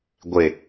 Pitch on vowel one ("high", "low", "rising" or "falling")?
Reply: low